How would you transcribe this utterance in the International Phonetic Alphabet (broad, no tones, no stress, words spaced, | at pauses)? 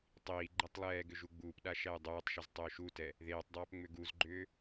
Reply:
tˤiː ɡ͡ǃɛtˤlˠɛːɡʏ ʒuɡ͡buːpɗa ʃæjdˤuːtˤʃʏz tˤʏːʃutɛ | ðeːtˤdˤæːp ŋ͡mʏɡuzɡ͡ǃʏː